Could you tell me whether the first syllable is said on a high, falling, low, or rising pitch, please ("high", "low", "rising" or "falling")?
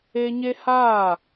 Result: high